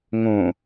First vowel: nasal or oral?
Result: nasal